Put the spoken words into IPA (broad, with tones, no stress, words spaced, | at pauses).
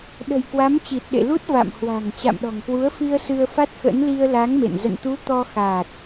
ɗə̤˨˩j kwa˨˦mt͡ɕi˨˩t̚ɗḛ˧˨ lu˦˥t̚ va̰˧˨mhwa̤˨˩ŋ t͡ɕa̰˧˨mɗɔ̤˨˩ŋkwu˨˦ə̯ fi˧ə̯sɨ˧ə̯fa˦˥t̚xə̰˧˥n li˧ə̯la˨˦ŋmḛ˧˨n zə̰˧˨nt̪u˨˦ t̪ɔ˧xa˨˩t̚